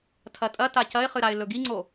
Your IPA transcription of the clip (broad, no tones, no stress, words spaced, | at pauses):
tʰɐtʼɐta cɐɪ̯χɨɾaɪ̯ lɵɡiŋ͡ǀo